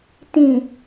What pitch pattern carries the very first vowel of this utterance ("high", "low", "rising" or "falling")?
low